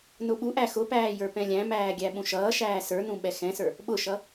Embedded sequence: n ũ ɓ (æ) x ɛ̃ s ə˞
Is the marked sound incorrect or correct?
incorrect